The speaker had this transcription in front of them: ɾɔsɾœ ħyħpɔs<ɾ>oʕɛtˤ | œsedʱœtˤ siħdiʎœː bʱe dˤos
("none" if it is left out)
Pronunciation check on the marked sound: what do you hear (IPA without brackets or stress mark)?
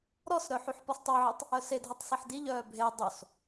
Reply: tˤ